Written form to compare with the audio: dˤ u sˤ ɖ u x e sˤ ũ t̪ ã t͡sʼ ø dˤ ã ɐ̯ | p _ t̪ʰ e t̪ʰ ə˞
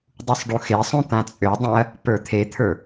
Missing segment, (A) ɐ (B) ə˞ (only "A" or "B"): B